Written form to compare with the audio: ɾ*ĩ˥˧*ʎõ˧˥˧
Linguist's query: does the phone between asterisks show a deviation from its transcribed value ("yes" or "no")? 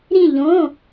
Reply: no